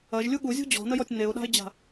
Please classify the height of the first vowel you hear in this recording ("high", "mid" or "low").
low